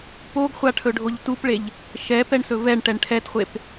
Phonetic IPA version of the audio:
p o ɡ χʷ a ʈʰ ɵ ɖʱ o ʎ t u p ɭ e ʎ | ʃ ɛ p ɛ ɳ s ɵ v ɛ ɳ ʈ ɛ ɳ ʈʰ ɛ t χʷ e p

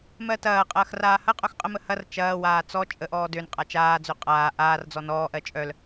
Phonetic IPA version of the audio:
m ɜ t ɐː qʼ ɐː x r aː h ɐ qʼ œ x qʼ ə m ə h ɐ r t͡ʃ ɐː w aː t͡s ɔ t͡ʃʼ ə ʔ ɔː d ø n qʼ a t͡ʃ aː d͡z ø qʼ aː ʔ aː r d͡z ɔ n ɔː ʔ ɜ t͡ʃʼ œ l

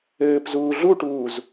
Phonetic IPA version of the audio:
ɘː p z uː ɮ u ʈ uː z

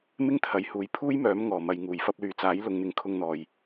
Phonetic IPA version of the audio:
m ɪ˥ ŋ t̪ʰ ɐ˨˧ j h uː˨˥ j pʰ uː˥ j m œː˨˥ m ŋ ɔː˨˩ m ɐ˨ j ŋ uː˨˩ j f ɐ˧ p̚ l yː˨ t͡s aː˨˥ j l ʊ˨ ŋ n̪ ɪ˨˧ ŋ kʰ ʊ˧ ŋ n̪ ɔː˨ j

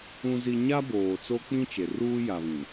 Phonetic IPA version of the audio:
ũ˦ z i˦ ɲ a˦ b oː˨ t͡s o˦ k͡p ĩ˦ t͡ʃ e˨ r uː˦ j a˨ β ĩ˨

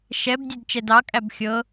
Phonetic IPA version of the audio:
ʃ ɛ b dʲ ɛ d t͡ʃ ɛ d ɑ kʼ æ b xʲ ɤ

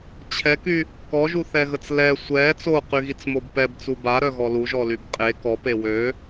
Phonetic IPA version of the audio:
t͡ɕʰ ɛ k y | k ɔ ʒ u θ ɛ ɣ ə t͡s l ɛ sʷ ɛ t͡s o q y ɣ i t͡s m o b p ɛ b t͡s u b a ɾ œ ɣ ɔ l u ʒ ɔ l y b qʼ e k ɔ p e w ø

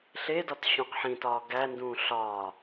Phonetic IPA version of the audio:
ɬ e d ɒ t ɕ ũ q ħ ĩ t ɒː ɡ æ n d ũː ɬ ɒː

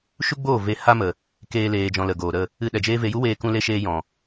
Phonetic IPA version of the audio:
ʃ u˦ ɡ͡b oː˦˨ v e˧ h a˦ m ə˨ | k eː˦ l eː˧ d͡ʒ ɔ̃˧ l ə˨ ɡ oː˨ ɾ ə˦˨ | ɨ˧ ɗ ɛ˨ d͡ʒ eː˦ v e˧ j u˦ w eː˧ k ũ˧ l e˧ ʃ eː˧ j ɔ̃˨

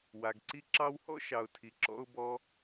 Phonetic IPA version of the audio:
w a˩ ɡ ǀ i˧ ǁ ɑ˧ w h ɔ̰˥ ʃ ɑ˩ ʊ̯ tʰ i˩ ǁ ɔ̰˧ ʊ̯ b ɔ˧

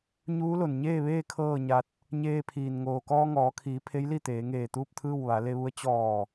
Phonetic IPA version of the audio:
ɲ uː˧˥ l o˩ n ɲ eː˥˨ ʋ eː˥˨ kʰ ɤː˥˨ ɲ a˧ t̚ | ɲ eː˧ pʰ iː˩ n ŋ oː˩ k ɔː˧ ŋ ɔː˩˧ kʰ iː˩˧ pʰ e˧˥ j l i˥˨ t̪ eː˩˧ ŋ eː˧˩ t̪ uː˥˨ p̚ t̪ʰ ɯː˥˨ w ʋ a˩˧ l e˧ ʋ u˧ ə̯ t͡ɕ ɔː˧˩

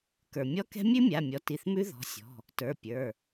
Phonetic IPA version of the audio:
k ə˞˩ mʲ ɔ˧˥˧ k ɛ̤˦˥ mʲ ʉ˦˥ mʲ a˩˧˩ mʲ ɔ˩˧˩ t i˩˧˩ θ m ʉ˦˥ ð ɔ̤˩˧˩ sʲ ɔ̤˩˧˩ | t ə˞˩˧˩ pʲ ə˞˩˧˩

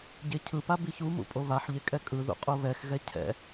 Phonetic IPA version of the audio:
ɟ e cʰ ɯ p a b i ç u m ṵ pʼ o β a ħ ʎ e kʼ ɛ kʼ ɯ ð ṵ qʼ o β ɛ x ɣ ɛ cʰ ɛ̰

